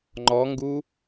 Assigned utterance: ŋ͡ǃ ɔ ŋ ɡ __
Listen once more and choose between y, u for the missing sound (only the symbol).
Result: u